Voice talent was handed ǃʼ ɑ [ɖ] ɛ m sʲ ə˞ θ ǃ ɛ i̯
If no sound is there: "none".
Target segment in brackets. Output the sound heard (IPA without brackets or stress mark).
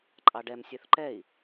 ɖ